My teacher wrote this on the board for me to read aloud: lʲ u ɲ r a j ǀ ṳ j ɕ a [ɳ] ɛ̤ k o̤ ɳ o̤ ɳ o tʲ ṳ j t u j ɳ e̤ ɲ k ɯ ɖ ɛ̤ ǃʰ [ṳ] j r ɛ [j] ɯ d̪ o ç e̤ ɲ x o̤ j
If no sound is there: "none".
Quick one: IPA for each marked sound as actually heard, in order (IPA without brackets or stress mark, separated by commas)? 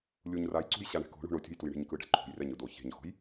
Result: ɳ, ṳ, ɲ